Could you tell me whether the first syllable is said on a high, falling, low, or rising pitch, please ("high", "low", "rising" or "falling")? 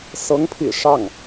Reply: rising